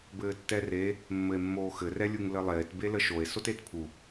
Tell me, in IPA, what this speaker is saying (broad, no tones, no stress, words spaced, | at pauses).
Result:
bɘːtːɛre | mːɘe̯mːoːxɘ rɛlʲuŋlɘlˠeːt beləʃoe̯ sotetpʰu